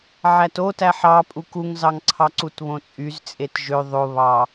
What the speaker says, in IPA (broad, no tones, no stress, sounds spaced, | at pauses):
ʕ æ t o t æ ħ ɑ pʼ u k u ŋ z ɑ ŋ ǀʰ ɑ ǀ u t β õ t͡sʼ y z t͡sʼ e t ʒ ø ðˤ o β ɑ